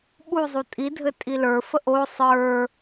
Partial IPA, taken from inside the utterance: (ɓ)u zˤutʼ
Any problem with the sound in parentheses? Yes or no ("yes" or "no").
no